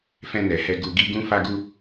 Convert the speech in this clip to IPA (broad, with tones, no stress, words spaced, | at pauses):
fɛ̃˧nɛ˨hɛ˧ ɡu˨ɡi˧ ɡũ˧ fa˧ɡu˧